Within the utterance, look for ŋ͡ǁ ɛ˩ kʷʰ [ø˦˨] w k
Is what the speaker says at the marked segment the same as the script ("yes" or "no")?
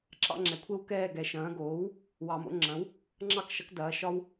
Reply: no